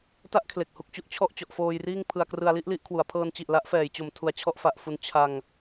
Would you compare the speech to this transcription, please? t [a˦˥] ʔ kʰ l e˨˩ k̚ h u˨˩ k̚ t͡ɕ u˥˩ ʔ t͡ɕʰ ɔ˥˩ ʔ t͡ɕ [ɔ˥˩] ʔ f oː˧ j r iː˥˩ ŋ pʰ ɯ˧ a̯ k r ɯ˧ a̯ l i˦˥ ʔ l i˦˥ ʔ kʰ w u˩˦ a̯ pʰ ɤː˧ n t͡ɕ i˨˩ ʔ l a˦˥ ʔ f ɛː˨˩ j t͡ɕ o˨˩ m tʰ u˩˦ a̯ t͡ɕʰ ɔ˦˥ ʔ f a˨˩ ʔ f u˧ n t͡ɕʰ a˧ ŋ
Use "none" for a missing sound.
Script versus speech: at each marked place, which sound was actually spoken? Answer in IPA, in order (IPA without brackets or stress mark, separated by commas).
a˦˥, ɔ˨˩